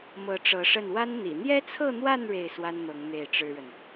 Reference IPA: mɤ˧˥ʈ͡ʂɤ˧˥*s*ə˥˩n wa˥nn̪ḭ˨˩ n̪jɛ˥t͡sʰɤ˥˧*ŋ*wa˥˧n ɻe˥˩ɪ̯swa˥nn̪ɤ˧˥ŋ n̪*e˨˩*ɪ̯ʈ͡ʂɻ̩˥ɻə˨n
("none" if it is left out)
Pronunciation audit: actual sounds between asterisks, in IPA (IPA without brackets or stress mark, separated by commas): ʂ, n̪, e˥˩